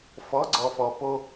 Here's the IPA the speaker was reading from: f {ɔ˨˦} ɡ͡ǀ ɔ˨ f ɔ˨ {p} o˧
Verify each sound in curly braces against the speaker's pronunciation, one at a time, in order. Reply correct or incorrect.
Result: correct, correct

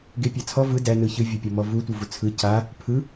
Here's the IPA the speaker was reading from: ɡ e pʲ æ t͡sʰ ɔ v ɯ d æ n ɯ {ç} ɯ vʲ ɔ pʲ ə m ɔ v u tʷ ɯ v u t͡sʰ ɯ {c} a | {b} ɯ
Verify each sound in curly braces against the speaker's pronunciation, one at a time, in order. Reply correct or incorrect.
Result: correct, correct, incorrect: pʰ

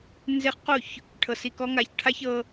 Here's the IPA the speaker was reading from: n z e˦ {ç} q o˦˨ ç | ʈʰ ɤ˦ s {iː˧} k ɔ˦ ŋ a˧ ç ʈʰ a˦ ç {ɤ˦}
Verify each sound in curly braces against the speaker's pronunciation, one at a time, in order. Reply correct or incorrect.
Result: incorrect: χ, incorrect: i˧, correct

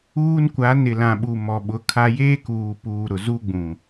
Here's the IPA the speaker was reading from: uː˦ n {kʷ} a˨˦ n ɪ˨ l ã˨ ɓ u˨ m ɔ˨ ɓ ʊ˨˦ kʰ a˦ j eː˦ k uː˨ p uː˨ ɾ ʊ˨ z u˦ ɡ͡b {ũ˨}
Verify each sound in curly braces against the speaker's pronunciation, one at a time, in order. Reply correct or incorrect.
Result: correct, correct

